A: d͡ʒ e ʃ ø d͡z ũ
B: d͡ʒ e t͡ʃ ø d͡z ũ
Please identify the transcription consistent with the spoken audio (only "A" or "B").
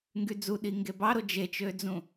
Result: B